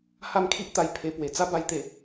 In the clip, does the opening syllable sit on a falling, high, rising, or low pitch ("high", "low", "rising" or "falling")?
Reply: falling